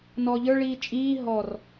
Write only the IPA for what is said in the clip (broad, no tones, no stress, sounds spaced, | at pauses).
n ɔː ʎ ə˞ ɭ iː t͡ʃʼ iː ɦ ɔ r